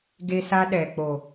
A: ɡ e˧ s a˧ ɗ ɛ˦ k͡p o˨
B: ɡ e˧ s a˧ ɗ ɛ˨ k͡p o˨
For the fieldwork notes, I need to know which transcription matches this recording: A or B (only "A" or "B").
B